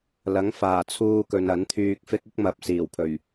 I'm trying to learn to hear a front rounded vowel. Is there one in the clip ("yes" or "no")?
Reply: yes